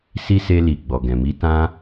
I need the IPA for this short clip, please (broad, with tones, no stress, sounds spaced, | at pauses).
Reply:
s i˦ s e˦ l i˧ ɡ͡b ɔ˨ ɡ ɛ̃˨ m i˨˦ t ã˦